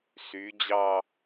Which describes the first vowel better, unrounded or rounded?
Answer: rounded